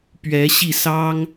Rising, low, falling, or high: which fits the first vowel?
rising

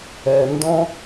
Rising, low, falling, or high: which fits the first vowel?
low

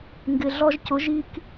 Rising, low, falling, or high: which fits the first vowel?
low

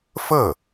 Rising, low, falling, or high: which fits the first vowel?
falling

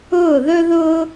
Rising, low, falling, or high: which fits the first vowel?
falling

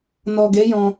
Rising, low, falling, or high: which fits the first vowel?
low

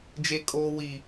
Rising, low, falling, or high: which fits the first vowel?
high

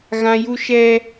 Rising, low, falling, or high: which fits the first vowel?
high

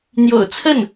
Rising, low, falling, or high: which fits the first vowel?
low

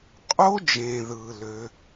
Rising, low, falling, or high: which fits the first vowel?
high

